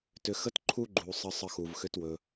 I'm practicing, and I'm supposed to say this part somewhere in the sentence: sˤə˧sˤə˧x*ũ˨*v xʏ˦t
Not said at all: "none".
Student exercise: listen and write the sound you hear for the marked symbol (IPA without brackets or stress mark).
u˨